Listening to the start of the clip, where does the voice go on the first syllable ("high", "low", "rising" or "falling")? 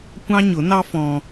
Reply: high